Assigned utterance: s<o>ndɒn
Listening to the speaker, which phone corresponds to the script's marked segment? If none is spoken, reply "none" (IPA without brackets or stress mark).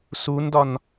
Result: u